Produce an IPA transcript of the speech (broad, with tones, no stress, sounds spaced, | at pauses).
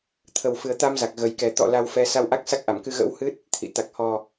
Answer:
t̪ʰ ə˨˩ w f ɨ˨˩ ə̯ t̪ a˧ m z a˨˩ k̚ ɣ ə˨˩ j k ɛ˨˩ t̪ ɔ̰˧˨ l a˧ w f ɛ˧ s a˧ w ʔ a˦˥ k̚ s a˦˥ k̚ ʔ a˧˩ m k ɨ˧ ɣ ə̰˧˥ w h ɨ˦˥ t̚ | t̪ʰ ḭ˧˨ t̪ a˨˩ k̚ h ɔ˨˩